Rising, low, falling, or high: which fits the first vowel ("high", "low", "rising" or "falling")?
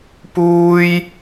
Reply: high